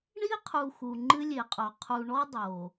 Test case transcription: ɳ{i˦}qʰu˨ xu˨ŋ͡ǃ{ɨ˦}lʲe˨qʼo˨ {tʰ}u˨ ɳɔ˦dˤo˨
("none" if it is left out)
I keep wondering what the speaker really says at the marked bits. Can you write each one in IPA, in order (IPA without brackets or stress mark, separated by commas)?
i˦, ɨ˦, qʰ